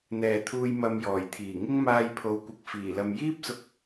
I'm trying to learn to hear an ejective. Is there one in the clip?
no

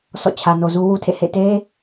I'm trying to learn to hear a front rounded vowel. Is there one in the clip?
no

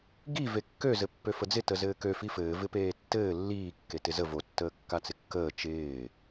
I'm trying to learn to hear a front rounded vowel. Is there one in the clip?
yes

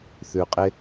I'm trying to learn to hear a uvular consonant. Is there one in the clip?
yes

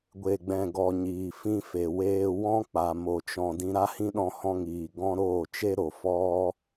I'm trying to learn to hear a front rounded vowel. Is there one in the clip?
no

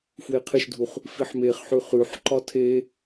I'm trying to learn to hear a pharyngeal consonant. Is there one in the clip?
yes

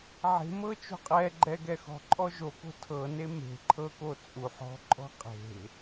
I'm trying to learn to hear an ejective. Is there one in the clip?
yes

